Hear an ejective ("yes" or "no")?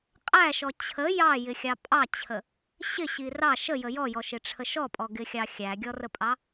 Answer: yes